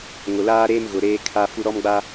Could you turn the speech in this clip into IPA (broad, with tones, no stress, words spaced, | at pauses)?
ŋʊ˨laː˦ɾeː˦m ɣʊ˨ɾeː˦kʰa˦fu˦ ɾɔ˦mɡ͡ba˦